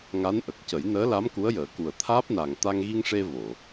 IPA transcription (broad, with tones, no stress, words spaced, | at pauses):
ŋa˧˥nʔə˨˩k̚cə˨˩˦j nəː˧˥la˧˥m ku˧˥ə̯jəː˨˩˦ku˨˩ə̯ t̪ʰaː˦˥p̚na˨˩ŋ t̪a˧ŋɣi˧ŋʂe˧ vo˨˩˨